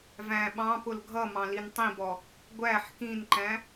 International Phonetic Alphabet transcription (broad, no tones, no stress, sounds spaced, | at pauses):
v æ̃ ɓ ɑ̃ p ʊ l ɡʱ ʌ m ɑ̃ l i n tˤ ĩ b ɔ | ɡʷ æ ħ k ĩ n ǃ æ̃